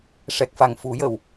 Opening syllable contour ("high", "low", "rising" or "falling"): low